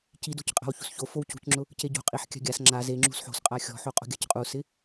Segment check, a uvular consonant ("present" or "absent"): present